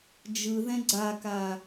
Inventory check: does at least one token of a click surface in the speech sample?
yes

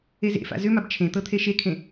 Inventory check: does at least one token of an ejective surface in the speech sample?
no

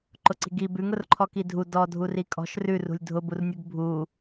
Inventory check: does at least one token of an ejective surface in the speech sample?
yes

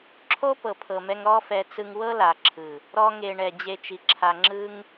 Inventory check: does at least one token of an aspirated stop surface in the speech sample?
yes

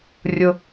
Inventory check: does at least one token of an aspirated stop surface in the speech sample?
no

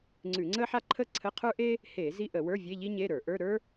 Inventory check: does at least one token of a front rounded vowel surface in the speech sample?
no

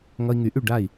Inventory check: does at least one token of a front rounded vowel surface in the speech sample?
yes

